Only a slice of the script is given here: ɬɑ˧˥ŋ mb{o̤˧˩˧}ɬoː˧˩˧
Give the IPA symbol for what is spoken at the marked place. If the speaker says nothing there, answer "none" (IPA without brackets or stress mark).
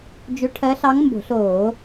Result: o̤˧˩˧